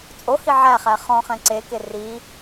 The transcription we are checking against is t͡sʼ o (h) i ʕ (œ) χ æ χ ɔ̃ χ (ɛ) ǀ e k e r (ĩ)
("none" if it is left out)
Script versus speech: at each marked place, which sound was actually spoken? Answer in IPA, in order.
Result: h, æ, ɛ̃, i

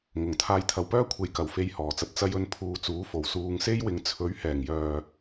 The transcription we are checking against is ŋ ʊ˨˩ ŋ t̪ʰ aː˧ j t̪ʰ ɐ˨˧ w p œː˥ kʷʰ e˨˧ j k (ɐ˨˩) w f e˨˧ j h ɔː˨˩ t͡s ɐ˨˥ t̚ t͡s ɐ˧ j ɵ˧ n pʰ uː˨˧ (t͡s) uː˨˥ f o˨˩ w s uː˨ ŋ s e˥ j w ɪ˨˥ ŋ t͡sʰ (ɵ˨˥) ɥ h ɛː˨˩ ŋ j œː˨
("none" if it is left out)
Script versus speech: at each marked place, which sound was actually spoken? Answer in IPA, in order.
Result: ɐ˨˩, t͡s, ɵ˨˥

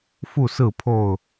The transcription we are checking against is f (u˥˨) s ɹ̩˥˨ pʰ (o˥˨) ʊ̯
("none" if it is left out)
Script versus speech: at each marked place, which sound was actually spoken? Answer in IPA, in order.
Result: u˥˨, o˥˨

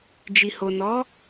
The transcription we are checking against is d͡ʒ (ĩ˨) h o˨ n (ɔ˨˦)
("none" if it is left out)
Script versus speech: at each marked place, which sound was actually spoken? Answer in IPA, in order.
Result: i˨, ɔ˨˦

